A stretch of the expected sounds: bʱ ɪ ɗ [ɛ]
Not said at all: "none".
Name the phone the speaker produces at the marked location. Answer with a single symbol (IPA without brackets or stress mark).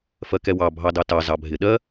ɜ